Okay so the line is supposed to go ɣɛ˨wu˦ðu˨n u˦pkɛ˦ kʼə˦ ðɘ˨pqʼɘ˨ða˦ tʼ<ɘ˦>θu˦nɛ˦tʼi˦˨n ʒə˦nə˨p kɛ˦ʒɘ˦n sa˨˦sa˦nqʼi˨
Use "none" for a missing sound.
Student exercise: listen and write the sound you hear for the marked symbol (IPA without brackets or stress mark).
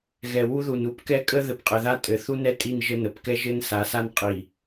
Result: ɘ˨